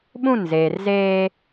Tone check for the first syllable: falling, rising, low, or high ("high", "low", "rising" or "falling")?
falling